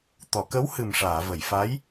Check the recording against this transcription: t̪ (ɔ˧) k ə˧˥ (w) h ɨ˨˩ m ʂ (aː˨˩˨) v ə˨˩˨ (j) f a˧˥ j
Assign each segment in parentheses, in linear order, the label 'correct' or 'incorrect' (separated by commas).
incorrect, correct, correct, correct